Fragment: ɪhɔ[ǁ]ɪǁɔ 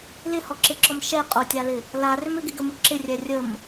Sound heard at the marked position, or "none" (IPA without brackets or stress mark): ǁ